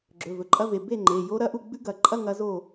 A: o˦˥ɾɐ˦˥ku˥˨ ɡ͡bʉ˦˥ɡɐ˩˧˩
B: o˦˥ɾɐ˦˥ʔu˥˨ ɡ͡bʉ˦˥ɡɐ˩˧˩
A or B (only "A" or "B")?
B